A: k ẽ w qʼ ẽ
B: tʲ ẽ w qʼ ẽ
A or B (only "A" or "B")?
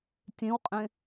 B